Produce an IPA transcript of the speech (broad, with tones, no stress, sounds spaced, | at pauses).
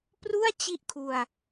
p r u˥˩ a̯ t͡ɕ i˥˩ ʔ kʰ u˧ a̯